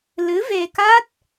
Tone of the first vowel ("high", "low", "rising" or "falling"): rising